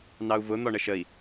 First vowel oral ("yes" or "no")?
yes